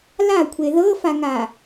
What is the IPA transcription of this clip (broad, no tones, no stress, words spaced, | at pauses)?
lakʷʰe ðɤfaŋa